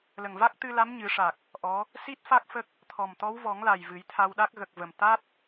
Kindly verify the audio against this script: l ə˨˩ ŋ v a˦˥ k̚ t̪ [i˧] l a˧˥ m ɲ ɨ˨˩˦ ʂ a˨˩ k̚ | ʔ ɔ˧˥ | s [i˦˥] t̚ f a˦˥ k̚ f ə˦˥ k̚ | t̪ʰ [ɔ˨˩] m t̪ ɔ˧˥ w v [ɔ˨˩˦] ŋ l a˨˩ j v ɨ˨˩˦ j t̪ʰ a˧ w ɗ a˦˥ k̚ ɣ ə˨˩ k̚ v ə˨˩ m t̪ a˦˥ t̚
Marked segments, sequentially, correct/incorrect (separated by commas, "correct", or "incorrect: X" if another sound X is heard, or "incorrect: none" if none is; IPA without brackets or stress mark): incorrect: ɨ˧, correct, correct, correct